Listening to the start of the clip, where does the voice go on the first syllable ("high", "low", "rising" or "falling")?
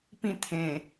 falling